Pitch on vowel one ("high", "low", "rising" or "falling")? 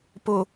low